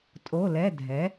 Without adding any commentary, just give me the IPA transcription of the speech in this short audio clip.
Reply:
tʼ o˧˥˧ l ɛ˧˥˧ dʱ ɛ˨˥

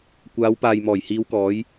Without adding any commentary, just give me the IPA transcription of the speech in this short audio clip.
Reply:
kʷ aː˨˧ w p aː˨ j m ɔː˨˩ j h iː˨˧ w k ɔː˨˧ j

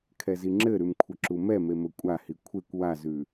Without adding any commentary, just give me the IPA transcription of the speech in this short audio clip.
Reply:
kʰ ɛ z i ŋ͡ǁ ɘ ɾ ʉ m kʷʰ ɘ ǁ u m ɛ m e m ɘ kʷʼ a h i kʷʰ e kʷ w a z ʉ

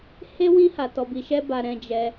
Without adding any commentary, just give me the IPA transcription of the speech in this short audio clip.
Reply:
h e˦ w ĩ˦ h a˧ t ɔ˧ b i˧ ʃ ɛ˦ b a˧ ɾ ɛ̃˧ d͡ʒ ɛ˧

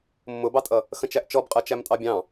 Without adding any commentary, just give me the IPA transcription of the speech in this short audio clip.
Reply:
mː ʊ b ɑ tʼ ʌ | x ə̃ t͡ʃ æ ʔ t͡ʃ ɔ b qʼ ɜ t͡ʃ æ m tʼ ɑ bʲ ɑ̃

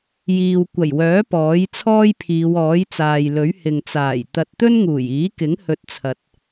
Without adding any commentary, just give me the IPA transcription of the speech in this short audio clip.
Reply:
j iː˨ w kʷ ɐ˨˩ j w œː˨˥ p ɔː˨˥ j t͡sʰ ɔː˥ j pʰ iː˨˧ w ɔː˨˥ j t͡s aː˨ j l ɵ˨˥ ɥ h ɪ˨ ŋ t͡s aː˨˩ j t̪ ɐ˧ t̚ t̪ ɵ˥ n ŋ uː˨˩ j iː˨˥ k ɪ˨˥ ŋ h ɵ˧ t̚ t͡sʰ ɐ˨ t̚

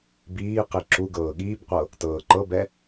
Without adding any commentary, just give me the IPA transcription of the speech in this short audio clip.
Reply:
b iː q i ǁ u ɡ ɤː ɠ iː b qʷ ɤ | t ɤː ǃ ɤ b ɛ

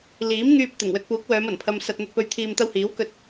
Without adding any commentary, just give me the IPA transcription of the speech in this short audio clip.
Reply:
l iː˨˥ m ŋ yː˧ p̚ t̪ ɪ˨˩ ŋ w ɵ˧ t̚ p uː˨˥ k̚ w œː˨˧ m ɐ˨˩ n pʰ ɐ˧ m s ɐ˧ t̚ n̪ ɵ˨ t̚ p ɵ˨ ɥ t̪ʰ iː˨ m t̪ ɐ˧ w h iː˨˥ w k ɵ˧ t̚

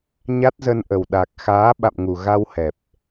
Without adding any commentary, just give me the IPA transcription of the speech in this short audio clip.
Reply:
ɲ a˦˥ t̚ z ə˧ n ʔ ə˨˩ w ɗ a˨˩ k̚ x aː˨˦ ɓ a̰˧˨ m ŋ u˨˩ ɣ a˧ w h ɛ˨˩ p̚

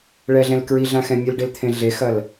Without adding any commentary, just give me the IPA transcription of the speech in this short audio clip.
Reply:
ɭ ɛ ɮ ɛ̃ l k ɹ i ɮ ã x ɛ̃ mʲ ɨ l ɖ e l t̪ʰ ẽ ɮ e x ɐ l

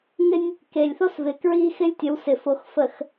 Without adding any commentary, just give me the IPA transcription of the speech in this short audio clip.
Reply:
ŋ ɪ˦ nʲ | k e˨ lʲ θ o˦ s v ɪ˨ k ɹ i˦ x ɪ˦ lʲ tʲ ə˨˦ w s ɪ˨ f o˨ x f ə˨ x

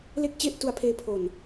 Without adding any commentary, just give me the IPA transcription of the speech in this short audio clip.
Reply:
l e˥˩ k̚ t͡ɕ e˥˩ ʔ t u˧ a̯ pʰ eː˧ pʰ o˨˩ n

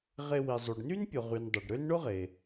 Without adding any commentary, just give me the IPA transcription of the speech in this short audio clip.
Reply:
ʁ e˦ w i˨ zˤ y˨ ɖ n y˥ n pʲ ʊ˨ ʁ y˨ n dˤ y˩ ɖ ɾ ø˥ n ɳ ʊ˥ ʁ eː˩

